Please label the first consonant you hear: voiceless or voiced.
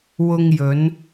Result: voiced